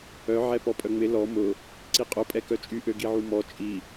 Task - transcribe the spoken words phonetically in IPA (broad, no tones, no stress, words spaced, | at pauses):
œ ʕɛpɔpʼœŋ͡mɪ lɔ mʊ | ǀiqʼʊ pʼɛkœt͡ʃʼy ʔøɡiʕumɔ t͡ʃʼi